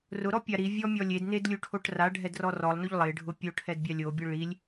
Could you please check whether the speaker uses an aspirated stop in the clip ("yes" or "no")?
yes